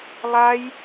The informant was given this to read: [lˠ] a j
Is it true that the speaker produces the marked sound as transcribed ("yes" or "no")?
yes